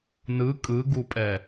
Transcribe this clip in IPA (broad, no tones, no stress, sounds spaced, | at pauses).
n ɯ kʼ ɯ ɡ u pʼ ɛ